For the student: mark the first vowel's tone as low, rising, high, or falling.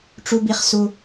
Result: high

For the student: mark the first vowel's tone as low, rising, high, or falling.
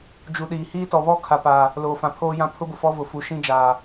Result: low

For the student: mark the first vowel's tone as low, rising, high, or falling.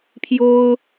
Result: high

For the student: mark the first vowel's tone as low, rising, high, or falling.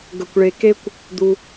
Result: low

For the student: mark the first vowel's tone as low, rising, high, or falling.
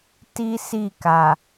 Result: high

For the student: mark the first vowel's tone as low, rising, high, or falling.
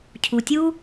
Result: low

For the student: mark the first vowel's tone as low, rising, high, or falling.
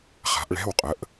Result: rising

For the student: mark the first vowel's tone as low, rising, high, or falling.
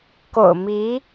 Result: low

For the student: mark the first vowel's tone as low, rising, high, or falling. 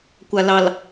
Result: low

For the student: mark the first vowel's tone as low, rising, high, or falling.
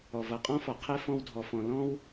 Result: low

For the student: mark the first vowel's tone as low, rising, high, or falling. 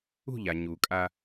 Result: falling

